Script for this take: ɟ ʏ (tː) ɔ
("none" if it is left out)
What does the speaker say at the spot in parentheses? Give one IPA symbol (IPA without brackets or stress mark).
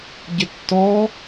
tː